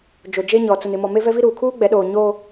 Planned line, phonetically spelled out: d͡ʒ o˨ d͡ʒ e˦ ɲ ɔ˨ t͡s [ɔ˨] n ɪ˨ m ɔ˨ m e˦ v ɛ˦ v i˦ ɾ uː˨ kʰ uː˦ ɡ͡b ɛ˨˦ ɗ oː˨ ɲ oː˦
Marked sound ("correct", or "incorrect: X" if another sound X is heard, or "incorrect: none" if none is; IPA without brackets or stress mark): incorrect: ʊ˨